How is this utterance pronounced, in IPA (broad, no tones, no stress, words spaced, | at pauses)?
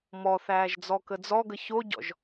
mɔθæːʒ d͡zɔkəd͡zɔɡə çoɟɔ̰ʒ